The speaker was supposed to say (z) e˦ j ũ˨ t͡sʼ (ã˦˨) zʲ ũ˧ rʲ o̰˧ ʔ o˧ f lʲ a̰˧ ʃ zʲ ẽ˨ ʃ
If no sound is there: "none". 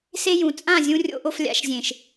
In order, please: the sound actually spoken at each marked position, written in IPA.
s, ã˦˨

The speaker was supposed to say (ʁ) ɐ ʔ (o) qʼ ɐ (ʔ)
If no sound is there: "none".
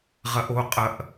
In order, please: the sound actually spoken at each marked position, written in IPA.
ʁ, o, ʔ

